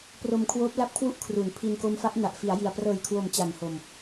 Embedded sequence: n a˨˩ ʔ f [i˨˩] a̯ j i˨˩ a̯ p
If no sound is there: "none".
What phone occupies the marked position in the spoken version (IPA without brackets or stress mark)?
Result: i˩˦